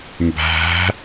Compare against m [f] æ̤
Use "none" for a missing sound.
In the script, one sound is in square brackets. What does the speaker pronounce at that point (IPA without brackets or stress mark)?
b